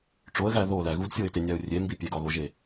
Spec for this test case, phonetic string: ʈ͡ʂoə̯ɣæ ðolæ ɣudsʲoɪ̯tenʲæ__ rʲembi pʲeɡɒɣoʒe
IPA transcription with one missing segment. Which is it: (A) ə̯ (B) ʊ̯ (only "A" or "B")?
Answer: B